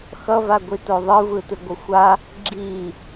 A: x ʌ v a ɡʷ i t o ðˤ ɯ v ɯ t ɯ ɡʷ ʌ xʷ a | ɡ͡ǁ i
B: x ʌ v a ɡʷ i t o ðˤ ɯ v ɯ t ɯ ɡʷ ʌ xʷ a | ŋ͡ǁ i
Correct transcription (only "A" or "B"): A